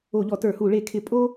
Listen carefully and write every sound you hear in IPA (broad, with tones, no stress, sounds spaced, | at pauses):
o˧˩˧ ʎ ɔ˧˩˧ t ə˞˧˩˧ h u˧˩˧ ɭ e˧˩˧ kʰ ɪ˧˩˧ pʼ o˥